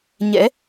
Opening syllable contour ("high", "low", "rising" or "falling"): rising